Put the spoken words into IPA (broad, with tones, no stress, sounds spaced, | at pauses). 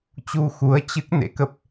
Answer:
t͡ɕ u˧ x u˨˦ ə̯ t͡ɕ ɨ˦˥ k̚ n ḛ˧˥ k ə˦˥ p̚